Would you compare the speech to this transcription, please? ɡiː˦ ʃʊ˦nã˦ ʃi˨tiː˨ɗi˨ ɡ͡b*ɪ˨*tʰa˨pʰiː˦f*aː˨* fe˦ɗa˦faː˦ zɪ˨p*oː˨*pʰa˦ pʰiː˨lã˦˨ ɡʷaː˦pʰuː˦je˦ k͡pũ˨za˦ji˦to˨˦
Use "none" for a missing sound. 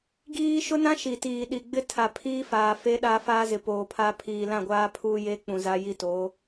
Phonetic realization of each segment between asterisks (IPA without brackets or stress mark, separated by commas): ɪ˦, aː˨, oː˨